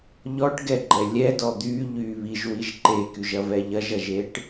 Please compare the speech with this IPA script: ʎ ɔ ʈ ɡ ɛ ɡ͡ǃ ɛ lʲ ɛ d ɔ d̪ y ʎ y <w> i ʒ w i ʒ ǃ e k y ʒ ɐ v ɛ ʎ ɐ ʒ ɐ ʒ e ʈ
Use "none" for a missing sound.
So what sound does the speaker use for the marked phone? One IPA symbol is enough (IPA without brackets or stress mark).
β